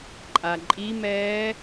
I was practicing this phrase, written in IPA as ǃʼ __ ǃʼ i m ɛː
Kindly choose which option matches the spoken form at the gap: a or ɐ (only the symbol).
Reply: a